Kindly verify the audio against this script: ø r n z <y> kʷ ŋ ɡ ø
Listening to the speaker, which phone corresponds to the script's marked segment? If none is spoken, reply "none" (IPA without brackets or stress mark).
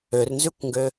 y